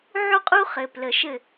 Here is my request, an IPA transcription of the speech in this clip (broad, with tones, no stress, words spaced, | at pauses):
ʕu˦qʼu˦ χɘ˨plə˨ʃɘ˦˨